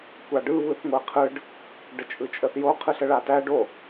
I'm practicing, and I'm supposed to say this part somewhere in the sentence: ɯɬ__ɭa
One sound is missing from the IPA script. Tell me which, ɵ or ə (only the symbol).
ə